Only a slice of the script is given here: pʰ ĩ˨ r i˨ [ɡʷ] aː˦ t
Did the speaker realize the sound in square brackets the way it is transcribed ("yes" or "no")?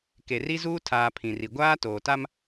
yes